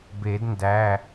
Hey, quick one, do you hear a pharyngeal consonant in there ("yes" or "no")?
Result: no